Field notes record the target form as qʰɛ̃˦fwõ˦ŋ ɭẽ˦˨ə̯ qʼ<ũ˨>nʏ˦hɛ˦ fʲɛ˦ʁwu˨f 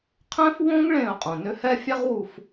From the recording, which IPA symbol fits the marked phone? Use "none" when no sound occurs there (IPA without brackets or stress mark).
õ˨